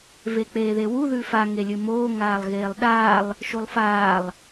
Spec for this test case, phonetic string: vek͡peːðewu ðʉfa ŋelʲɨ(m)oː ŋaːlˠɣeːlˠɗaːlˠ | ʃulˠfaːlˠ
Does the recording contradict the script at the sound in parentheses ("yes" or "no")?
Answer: no